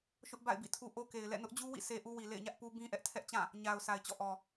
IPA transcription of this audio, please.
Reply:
ʃ ʊ˦ ʔ b a̰˦˨ ɪ̯ b ḭ˦˨ tʰ u˦ ʔ o˦ k e˨ ɪ̯ l ɛ̰˦˨ n ʊ˦ ʔ d͡ʑ u˦ w ḭ˦˨ sʰ e˦ ʔ u˦ w i˨ l ḛ˦˨ ɪ̯ ɲ ä˦ ʔ p u˦ b ĩ˦ ʔ ɛ˦ ʔ tʰ ɛ˦ ʔ t͡ɕ ã˦˨ | ɲ a˨ ʊ̯ sʰ a˨ ɪ̯ t͡ɕ ɔ̰˦˨ ʔ ɔ˨

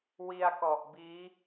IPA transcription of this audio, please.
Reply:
w i˧ a̯ k ɔ˨˩ ʔ b iː˦˥

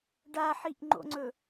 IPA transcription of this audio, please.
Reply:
ɖ a ħ i ʔ ŋ͡ǃ o̰ ŋ͡ǀ ɵ

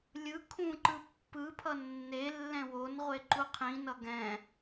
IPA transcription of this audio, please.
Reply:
lʲ ɯ kʰ ũ ǃ ɯ pː ɯ pʰ ʌ nː e lː ɛ̃ w o n ʁʷ e ǃ u qʰ ĩ n ʌ ɡ ɛ̃

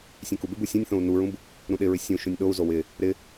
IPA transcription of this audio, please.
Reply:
sʲ ẽ k u b ɪ b u sʲ ũ nʲ θ õ u̯ n u ɹ ũ b | ɾ ũ ɗ ɪ ɹ ɪ sʲ ũ ʃ ũ nʲ ɗ o u̯ z o w ɪ | ɾ ɪ

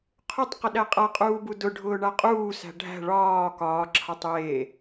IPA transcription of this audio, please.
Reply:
qʰ ʊ tˤ q ɪ ɗ æ qʼ a qʼ uː b u d ʊ ɖʱ ʊː ɳ a qʼ uː s æ̤ ɖʱ æ̤ ɭ ɒː k ɒː ǁʰ a tˤ j eː

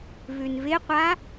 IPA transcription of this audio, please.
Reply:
v ʉ n v ɪ qʷ a

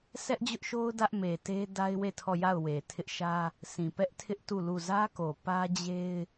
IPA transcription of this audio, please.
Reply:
s ɛ˦ ʔ d͡ʑ ʊ˦ ʔ ʃ o˦ ʊ̯ d ä˦ ʔ m e˨ t e˦ d a˦ ɪ̯ w e˦˨ tʰ ɔ˦˨ j a˦˨ ʊ̯ w e˨ tʰ ɪ˦ ʔ ʃ ä˦ | sʰ ĩ˨ p ɛ˦ ʔ tʰ ɪ˦ ʔ t u˦˨ l u˦˨ z ä˦ k o˨ p ä˦ d͡ʑ e˦ ɪ̯

